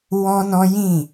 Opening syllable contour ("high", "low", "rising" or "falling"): high